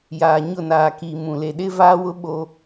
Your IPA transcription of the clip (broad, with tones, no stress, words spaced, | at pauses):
jaː˨ ɲʊ˦˨naː˨ki˨ mũ˨ le˨ɗɪ˦vaː˦wʊ˦ ɓo˦